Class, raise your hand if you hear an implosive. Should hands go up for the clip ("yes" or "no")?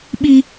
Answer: yes